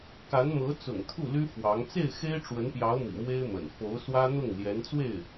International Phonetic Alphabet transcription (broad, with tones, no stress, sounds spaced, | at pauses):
k a˧˥ n m ɤ˧˥ t͡s ʊ̰˨˩ ŋ t̪ʰ u˥˩ l y˥ f w ɑ˧˥ ŋ t͡s e˥˩ ɪ̯ x e˥ ɪ̯ ʈ͡ʂ w ə˧˥ n p j ɑ˧˥ ʊ̯ m ḭ˨˩ m w e˥ ɪ̯ m ə̰˨˩ n f o˧˥ ʊ̯ s w ä˥ n̪ ʊ˥˩ ŋ l j ɛ˧˥ n t͡s w e˥˩ ɪ̯